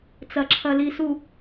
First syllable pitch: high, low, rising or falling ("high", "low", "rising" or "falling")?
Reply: low